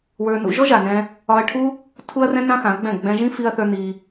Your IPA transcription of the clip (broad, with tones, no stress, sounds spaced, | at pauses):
w ə˞˧ n ṵ˧ ʒ ɔ˦ ʒ a˨ n ɛ̃˧ | ɒ˧ ɐ̯ ʈʰ u˦ | tʰ u˦ ɐ̯ r ɛ̃˦ n ã˦ x ã˨˦ ɐ̯ ɡ͡b ɛ̃˦˨ ɡ͡b ɛ̃˧ ʒ ĩ˦ f i˧ ɐ̯ θ ə˞˧ n i˧